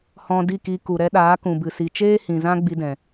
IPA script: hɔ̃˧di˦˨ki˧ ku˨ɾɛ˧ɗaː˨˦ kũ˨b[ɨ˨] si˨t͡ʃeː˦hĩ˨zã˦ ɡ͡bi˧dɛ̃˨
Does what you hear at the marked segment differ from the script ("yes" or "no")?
no